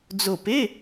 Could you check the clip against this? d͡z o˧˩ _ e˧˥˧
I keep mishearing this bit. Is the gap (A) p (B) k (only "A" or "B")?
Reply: A